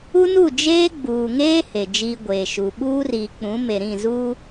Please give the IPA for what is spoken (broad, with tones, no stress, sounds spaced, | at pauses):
u˦ n u˦˨ d͡ʒ eː˦ ɡ͡b uː˨ ŋ eː˦ h e˨ d͡ʒ iː˦ ɡʷ eː˨ ʃ u˨ ɓ uː˦ r iː˨ k͡p ũ˨˦ m e˨ ɾ ĩ˦˨ z uː˦